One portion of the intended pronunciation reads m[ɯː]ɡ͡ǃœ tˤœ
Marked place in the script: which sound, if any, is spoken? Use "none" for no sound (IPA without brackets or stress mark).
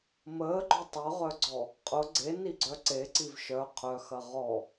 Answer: əː